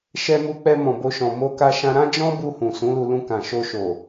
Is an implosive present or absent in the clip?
absent